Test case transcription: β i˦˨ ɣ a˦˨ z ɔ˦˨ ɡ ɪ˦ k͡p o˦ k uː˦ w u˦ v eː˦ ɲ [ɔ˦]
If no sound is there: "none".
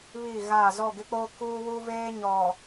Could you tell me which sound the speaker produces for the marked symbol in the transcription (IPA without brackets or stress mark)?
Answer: ɔ˨